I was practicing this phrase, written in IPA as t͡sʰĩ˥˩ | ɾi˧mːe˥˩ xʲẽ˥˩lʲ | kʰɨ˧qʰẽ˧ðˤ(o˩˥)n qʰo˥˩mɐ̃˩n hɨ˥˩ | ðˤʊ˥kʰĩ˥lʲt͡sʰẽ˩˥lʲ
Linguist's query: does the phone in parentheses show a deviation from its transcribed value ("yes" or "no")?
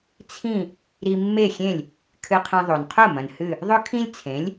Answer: yes